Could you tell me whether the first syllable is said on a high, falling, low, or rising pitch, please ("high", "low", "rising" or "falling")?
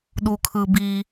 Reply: low